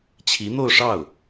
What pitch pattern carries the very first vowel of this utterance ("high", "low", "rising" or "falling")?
rising